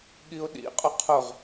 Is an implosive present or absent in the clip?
present